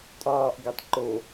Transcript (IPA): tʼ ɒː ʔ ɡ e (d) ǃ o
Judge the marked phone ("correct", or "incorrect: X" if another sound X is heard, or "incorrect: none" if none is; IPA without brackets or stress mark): incorrect: tˤ